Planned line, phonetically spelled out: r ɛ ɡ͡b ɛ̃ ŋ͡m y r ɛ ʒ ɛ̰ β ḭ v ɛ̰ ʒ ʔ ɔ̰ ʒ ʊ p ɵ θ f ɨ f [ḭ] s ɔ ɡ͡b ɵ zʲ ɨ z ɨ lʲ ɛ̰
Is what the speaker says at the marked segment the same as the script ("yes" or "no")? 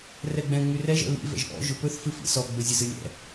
yes